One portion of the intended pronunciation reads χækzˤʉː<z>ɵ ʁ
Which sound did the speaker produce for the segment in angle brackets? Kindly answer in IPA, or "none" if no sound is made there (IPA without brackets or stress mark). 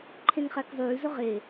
z